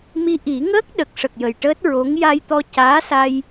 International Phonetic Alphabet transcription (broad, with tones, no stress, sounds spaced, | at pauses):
m i˧ ʔ i˨˩˦ ŋ əː˦˥ k̚ ɗ ə˨˩ k̚ ʂ ə˨˩ k̚ j ə˨˩ j ʈ əː˦˥ t̚ ɹ o˧˥ ŋ j a˧ j t̪ ɔ˧ c aː˧˥ s a˧ j